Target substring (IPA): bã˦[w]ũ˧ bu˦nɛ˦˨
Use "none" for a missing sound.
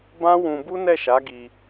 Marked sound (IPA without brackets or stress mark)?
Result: w